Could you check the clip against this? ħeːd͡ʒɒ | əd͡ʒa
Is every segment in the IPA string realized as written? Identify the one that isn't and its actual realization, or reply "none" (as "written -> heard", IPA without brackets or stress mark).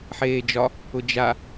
ə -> ʊ